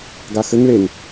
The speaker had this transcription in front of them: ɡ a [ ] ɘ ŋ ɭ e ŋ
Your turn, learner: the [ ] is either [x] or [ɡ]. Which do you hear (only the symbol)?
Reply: x